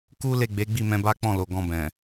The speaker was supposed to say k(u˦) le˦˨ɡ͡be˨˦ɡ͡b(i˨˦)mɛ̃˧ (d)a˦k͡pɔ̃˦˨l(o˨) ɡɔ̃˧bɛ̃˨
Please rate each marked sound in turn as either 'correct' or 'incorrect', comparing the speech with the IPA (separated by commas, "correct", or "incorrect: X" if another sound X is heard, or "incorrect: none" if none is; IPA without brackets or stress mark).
correct, incorrect: i˦˨, incorrect: b, correct